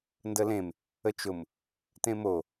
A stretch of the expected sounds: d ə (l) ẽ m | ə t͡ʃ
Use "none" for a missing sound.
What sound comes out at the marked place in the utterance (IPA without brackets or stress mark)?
l